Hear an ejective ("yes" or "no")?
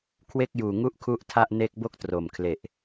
no